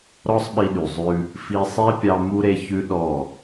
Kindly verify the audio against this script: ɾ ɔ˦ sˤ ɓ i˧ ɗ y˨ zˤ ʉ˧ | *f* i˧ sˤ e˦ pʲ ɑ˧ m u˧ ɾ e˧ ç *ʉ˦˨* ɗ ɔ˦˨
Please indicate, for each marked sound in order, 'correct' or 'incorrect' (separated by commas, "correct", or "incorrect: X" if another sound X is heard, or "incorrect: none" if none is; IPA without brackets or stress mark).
correct, incorrect: ʉ˦